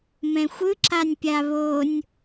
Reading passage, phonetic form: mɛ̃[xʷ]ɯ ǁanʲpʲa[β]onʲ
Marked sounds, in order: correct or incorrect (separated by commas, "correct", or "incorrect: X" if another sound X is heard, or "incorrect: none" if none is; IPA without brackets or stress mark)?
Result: correct, correct